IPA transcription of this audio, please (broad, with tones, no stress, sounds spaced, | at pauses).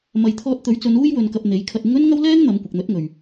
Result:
m ɐ˨ j t̪ʰ ɔː˧ t̚ t̪ ɵ˨˥ ɥ t͡s ɵ˨˧ n uː˥ j w ɵ˧ n k ɐ˧ p̚ n̪ e˨˥ j kʰ ɐ˧ t̚ ɪ˥ ŋ ɵ˥ n ŋ ɐ˥ w l ɛː˥ ŋ n̪ ɐ˨˧ m kʷ ɪ˨ k̚ n̪ ɵ˨˥ t̚ ŋ ɵ˨ ɥ